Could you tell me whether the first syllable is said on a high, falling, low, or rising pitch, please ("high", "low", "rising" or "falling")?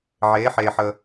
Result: rising